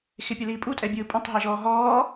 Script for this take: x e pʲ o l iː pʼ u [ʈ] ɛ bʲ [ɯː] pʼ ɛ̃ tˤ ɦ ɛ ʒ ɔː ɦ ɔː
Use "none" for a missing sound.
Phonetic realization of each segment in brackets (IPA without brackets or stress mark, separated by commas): tʼ, ɯː